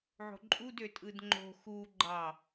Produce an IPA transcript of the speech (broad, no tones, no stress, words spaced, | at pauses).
ʕo̤ǃʼud øtʼɯdŋ͡ǃo̤ xu ɡ͡ǃɑ